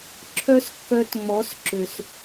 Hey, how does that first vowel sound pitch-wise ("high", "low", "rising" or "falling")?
high